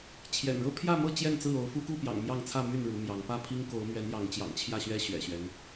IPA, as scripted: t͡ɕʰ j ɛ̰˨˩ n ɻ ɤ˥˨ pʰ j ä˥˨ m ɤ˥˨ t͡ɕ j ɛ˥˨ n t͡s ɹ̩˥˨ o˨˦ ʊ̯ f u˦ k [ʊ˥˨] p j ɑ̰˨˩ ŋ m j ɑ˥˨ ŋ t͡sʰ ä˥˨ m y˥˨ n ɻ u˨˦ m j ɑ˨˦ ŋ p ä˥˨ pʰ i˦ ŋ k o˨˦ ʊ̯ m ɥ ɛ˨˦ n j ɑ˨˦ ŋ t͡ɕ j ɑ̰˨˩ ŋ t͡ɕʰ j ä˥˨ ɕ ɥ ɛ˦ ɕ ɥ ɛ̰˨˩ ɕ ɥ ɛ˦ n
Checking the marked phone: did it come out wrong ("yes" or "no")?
yes